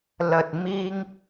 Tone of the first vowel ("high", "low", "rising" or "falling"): low